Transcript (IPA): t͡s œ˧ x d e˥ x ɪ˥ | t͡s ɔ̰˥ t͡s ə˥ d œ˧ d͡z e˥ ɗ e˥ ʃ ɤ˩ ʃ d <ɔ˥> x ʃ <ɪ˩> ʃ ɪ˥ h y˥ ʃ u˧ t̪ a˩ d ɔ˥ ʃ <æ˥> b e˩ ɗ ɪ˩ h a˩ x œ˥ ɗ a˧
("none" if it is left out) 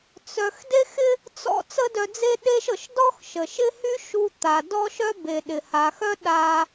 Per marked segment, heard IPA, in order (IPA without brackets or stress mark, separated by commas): ɔ˥, ə˩, œ˥